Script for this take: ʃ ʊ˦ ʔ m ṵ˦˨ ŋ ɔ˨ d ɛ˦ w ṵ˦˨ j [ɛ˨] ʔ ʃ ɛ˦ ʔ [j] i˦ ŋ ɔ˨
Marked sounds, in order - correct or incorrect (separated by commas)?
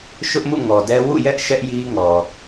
incorrect, correct